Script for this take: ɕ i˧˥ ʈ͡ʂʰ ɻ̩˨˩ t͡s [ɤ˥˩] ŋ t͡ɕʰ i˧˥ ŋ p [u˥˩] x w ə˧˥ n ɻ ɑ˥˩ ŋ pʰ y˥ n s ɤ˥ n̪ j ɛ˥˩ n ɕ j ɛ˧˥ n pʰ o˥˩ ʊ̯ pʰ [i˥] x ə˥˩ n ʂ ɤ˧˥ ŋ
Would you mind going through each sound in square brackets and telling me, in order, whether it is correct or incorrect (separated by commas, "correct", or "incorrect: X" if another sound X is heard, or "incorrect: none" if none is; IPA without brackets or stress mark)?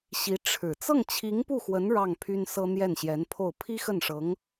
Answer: correct, correct, correct